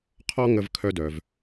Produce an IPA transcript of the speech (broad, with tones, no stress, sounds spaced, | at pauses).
qʰ ɔ˥ ŋ ə˥ v kʰ œ˥ d œ˩ v